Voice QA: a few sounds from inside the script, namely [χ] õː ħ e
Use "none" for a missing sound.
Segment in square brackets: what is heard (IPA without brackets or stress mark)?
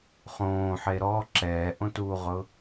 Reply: χ